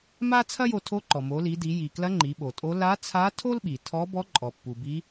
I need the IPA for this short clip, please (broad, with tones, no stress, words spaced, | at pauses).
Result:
ma˥ t͡sʰɐ˥jo˧tʰo˧˥ǃɔ˩ mo˩˧li˩˧di˩˧ ji˩klɐ˧˥ ŋ͡ǃi˩˧ɓo˩tʼo˧˥ la˧˥ t͡sʰa˧˥tʰo˥lɓi˩tʰɔ˧˥ bɔ˧˥ ǃʼɔ˩pːu˩bi˧˥